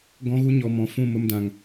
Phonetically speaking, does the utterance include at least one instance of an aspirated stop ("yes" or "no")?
no